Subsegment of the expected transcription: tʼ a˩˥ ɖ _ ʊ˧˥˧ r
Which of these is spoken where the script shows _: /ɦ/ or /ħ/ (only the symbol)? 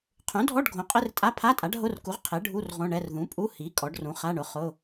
ɦ